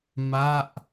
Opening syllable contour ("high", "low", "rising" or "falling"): falling